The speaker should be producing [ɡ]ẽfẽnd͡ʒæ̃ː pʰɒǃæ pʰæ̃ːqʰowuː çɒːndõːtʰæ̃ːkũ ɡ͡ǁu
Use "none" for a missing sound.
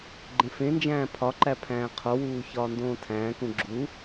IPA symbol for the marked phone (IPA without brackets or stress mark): ɡ͡ǃ